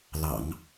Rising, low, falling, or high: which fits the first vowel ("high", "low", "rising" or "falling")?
low